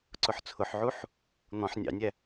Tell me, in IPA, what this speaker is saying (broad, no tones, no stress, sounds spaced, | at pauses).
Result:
ǀ ʊ ħ t͡sʰ ʊ ħ ʕ u ħ | n̪ ɔ̃ ħ nʲ ɑ̰ nʲ æ